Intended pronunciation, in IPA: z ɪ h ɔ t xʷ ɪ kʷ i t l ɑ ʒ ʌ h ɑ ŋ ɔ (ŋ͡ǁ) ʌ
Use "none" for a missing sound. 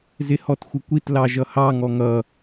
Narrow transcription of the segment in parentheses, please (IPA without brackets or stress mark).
ŋ